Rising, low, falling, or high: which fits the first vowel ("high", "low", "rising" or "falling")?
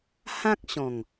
high